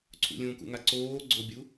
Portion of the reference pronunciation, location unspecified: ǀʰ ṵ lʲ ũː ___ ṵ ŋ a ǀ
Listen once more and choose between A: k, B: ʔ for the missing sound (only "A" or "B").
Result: A